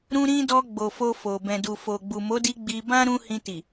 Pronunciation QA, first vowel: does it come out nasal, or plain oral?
nasal